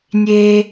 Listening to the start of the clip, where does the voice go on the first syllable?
high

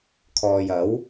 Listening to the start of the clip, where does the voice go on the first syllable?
low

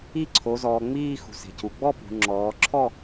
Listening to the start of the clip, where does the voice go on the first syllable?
falling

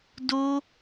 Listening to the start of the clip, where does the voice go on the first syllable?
high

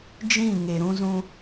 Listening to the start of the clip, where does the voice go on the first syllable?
falling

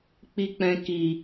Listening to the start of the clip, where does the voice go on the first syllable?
low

